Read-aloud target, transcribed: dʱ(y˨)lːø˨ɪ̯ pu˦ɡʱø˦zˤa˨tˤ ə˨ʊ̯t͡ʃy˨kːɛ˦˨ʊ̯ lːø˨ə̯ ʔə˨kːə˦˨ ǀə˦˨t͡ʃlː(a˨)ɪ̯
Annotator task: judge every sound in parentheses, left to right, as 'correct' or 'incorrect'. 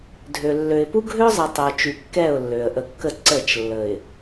incorrect: ø˨, incorrect: ə˨

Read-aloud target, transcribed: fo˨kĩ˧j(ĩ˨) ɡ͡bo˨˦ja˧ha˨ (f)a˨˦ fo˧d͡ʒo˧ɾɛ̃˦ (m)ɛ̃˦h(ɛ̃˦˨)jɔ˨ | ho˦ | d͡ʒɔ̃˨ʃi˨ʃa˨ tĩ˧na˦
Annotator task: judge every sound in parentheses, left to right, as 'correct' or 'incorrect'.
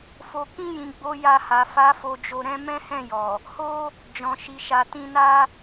correct, correct, correct, correct

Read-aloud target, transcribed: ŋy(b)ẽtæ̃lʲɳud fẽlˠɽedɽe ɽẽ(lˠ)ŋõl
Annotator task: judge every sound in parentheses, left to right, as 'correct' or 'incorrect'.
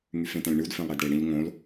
incorrect: f, incorrect: ʎ

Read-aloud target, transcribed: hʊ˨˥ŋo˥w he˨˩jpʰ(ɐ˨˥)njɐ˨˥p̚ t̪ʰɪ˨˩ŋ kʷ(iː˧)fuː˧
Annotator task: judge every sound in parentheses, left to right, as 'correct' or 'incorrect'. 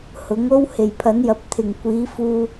correct, incorrect: iː˨˥

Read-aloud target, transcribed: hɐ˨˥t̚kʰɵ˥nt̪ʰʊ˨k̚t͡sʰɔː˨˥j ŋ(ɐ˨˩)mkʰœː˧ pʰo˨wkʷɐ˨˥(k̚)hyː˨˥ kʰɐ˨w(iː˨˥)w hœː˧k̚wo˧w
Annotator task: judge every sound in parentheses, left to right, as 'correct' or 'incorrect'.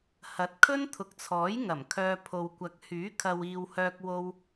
correct, correct, incorrect: iː˨

